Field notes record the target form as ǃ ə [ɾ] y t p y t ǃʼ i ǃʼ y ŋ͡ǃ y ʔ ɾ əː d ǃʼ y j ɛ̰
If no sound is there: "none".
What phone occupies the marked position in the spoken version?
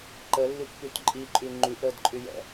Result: lː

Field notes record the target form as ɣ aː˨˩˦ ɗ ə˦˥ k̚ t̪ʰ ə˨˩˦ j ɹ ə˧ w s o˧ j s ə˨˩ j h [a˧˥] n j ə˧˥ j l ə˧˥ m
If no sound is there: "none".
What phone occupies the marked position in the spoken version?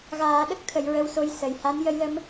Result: a˧˥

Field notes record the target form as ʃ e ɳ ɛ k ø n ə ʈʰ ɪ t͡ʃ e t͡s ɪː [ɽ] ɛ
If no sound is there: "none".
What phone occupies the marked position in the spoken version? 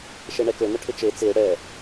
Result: ɽ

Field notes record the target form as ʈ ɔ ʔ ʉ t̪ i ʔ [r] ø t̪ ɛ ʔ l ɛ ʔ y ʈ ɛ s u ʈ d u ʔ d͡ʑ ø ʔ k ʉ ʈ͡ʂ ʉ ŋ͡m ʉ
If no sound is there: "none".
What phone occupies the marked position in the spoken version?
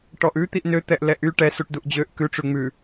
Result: n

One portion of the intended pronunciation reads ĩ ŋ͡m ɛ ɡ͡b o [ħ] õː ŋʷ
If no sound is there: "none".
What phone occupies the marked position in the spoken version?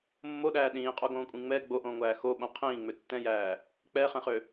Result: ʔ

